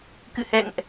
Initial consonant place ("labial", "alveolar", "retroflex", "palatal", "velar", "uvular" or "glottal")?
velar